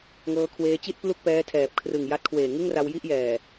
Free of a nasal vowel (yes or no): yes